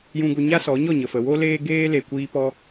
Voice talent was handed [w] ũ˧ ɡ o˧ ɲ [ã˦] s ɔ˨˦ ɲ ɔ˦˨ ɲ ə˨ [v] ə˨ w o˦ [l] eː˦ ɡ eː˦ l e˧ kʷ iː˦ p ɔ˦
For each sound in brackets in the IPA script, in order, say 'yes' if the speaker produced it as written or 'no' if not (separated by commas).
no, no, no, yes